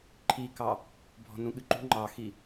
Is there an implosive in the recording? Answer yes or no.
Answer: yes